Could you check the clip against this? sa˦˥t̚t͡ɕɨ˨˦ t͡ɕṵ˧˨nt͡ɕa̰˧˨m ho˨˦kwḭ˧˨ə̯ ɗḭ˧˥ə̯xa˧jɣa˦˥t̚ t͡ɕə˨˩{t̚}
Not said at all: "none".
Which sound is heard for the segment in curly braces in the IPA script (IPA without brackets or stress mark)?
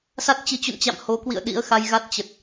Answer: t̚